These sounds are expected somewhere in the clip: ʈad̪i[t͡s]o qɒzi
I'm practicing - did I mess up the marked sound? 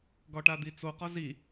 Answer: no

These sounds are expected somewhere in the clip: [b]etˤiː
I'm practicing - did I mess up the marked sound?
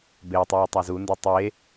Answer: no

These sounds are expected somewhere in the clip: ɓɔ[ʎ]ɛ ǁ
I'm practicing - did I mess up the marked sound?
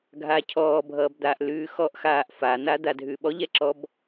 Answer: no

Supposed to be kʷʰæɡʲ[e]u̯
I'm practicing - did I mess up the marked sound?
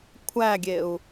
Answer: no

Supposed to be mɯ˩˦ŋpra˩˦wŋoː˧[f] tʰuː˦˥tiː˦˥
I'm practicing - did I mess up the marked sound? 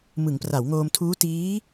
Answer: yes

